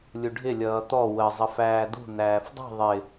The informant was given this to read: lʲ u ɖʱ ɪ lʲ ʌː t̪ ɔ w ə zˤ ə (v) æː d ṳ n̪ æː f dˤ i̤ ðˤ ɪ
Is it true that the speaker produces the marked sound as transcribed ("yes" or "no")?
no